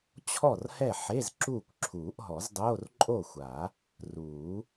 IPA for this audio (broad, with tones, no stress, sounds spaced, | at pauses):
t͡ɕʰ ɔ˥˨ r h ɛ˥˨ ħ e˧˥˧ z ǁ uː˥˨ kʷ ǁʰ uː˨˩˦ ʔ ɦ ɔ˨˩˦ z dˤ oː˧˥˧ r ǃʼ o˥˨ xʷ a˨˩˦ | r uː˨˩˦